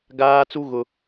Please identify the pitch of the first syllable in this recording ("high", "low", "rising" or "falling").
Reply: high